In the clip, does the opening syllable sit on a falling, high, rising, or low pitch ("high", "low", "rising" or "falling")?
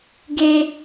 high